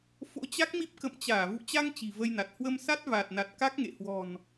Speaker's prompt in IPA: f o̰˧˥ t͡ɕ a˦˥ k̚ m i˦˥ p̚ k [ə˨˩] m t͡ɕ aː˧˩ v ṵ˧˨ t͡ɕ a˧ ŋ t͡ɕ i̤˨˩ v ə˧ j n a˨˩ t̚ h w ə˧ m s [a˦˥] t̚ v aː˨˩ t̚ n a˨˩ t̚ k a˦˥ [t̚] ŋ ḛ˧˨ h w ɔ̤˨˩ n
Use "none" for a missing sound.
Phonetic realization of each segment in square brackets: ə̰˧˨, a˦˥, k̚

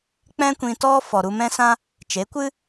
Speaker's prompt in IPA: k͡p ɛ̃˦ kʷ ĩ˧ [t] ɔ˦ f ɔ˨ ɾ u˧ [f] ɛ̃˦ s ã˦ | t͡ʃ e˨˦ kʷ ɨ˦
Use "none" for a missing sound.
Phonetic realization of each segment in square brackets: t, m

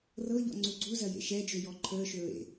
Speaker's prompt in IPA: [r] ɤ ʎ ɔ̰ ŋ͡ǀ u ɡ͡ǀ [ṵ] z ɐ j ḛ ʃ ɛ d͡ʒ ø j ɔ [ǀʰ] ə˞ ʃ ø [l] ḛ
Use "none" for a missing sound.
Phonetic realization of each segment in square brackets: r, u, ǃʰ, ɹ

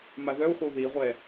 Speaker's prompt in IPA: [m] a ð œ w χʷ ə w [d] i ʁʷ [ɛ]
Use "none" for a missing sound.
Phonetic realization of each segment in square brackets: m, ð, ɛ

